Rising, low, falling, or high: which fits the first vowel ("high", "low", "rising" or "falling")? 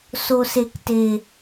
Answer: high